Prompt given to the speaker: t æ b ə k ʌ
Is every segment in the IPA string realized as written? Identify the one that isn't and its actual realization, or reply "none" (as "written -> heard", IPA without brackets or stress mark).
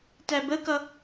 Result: none